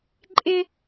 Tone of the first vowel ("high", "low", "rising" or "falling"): high